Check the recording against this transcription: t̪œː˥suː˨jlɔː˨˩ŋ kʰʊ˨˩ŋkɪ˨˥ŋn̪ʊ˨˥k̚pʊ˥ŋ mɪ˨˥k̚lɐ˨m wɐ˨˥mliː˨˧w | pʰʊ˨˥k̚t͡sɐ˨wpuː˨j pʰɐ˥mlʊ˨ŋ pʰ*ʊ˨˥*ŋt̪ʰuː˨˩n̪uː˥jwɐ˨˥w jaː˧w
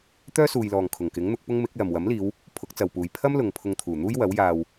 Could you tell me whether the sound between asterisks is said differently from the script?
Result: yes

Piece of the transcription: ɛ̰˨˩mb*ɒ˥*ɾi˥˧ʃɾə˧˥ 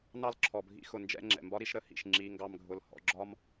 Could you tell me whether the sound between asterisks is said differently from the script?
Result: no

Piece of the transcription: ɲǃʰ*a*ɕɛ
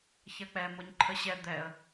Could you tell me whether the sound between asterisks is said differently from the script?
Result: yes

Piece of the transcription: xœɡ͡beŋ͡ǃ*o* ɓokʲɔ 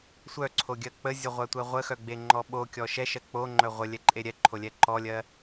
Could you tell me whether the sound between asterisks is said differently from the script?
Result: yes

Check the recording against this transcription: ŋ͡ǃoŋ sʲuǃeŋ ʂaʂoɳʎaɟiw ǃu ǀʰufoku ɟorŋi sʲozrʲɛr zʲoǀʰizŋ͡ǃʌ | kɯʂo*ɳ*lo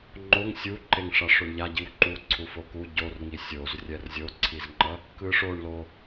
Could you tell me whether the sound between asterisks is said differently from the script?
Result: no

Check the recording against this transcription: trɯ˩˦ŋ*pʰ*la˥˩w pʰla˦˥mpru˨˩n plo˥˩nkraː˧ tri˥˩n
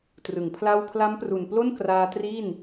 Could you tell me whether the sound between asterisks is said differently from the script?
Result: no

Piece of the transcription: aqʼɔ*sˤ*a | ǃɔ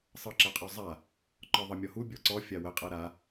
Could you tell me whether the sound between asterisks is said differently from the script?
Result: yes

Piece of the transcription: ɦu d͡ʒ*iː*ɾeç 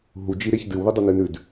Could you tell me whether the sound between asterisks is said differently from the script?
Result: yes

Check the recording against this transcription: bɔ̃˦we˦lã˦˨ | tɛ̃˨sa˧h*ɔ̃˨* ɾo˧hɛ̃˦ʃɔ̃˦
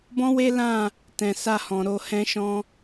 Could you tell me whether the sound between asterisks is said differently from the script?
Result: no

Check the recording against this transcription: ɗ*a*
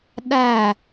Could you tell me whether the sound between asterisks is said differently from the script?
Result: yes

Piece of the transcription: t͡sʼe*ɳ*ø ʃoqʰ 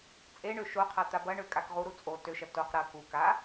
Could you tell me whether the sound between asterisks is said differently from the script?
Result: no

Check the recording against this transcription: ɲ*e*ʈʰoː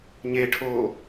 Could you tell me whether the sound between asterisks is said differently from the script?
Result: no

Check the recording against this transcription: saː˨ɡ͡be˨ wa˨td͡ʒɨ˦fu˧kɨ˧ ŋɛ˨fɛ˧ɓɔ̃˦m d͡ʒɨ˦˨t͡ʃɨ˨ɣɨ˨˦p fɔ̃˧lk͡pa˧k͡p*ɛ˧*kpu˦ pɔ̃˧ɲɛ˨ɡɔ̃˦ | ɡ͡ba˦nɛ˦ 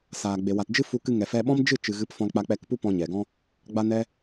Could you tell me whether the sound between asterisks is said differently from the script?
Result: no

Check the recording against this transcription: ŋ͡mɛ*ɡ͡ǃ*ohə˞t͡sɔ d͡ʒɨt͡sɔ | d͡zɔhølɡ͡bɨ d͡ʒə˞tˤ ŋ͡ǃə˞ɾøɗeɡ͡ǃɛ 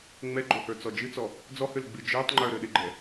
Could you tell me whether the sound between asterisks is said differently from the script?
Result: no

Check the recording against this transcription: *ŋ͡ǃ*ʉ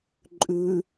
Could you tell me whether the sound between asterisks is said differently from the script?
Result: yes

